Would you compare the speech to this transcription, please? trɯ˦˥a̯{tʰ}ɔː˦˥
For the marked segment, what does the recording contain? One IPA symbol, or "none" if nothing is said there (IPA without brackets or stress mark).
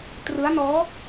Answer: n